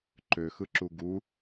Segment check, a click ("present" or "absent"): present